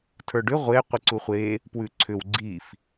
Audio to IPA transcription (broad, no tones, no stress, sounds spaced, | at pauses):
tʰ ə˞ ɖ ʏ ʁʷ e qʷ i ǀ u χʷ e | p w ʉ ǀʰ ʏ w ɡ͡ǀ i f